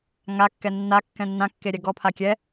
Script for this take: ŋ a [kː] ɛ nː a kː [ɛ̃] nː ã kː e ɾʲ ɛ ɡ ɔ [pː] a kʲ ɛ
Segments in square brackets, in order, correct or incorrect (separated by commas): correct, correct, incorrect